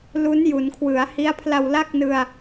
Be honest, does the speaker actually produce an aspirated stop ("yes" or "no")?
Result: yes